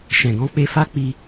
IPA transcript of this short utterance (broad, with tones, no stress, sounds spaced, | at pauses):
ʃ ɛ̃˨ ɡ ɔ̃˧ k͡p e˧ f a˦ k͡p i˧